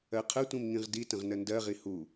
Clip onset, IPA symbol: ɜ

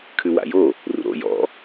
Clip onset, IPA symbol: kʰ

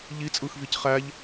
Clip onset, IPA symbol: ʎ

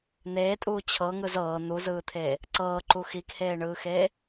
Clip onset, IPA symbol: n̪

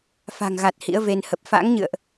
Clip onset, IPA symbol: f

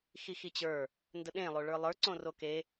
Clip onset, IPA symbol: x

